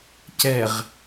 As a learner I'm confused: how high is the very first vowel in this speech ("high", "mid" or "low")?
mid